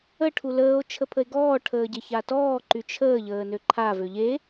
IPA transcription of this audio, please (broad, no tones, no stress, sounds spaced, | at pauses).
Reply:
ə ʈʰ u l əː o̯ t͡ʃʰ ə pʰ ə e̯ ɡ ɔː ʈʰ əː ɟ e ç a t ɔː ǃ y t͡ʃʰ əː ʎ əː n ø ǃʰ a v ø ʎ e